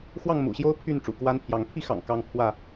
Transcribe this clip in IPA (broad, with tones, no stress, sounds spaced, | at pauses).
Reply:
x w ɑ˥˨ ŋ m ṵ˨˩ ɕ j o˦ ʊ̯ pʰ y˥˨ n ʈ͡ʂ ṵ˨˩ k w a˦ n pʰ j ɑ˨˦ ŋ pʰ i˦ x ɑ̰˨˩ ŋ k ɑ˦ ŋ pʰ w ä˥˨